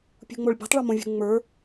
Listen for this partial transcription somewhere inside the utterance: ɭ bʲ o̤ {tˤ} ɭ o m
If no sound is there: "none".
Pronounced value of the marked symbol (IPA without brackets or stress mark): tˤ